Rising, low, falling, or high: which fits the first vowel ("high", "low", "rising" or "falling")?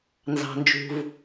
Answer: low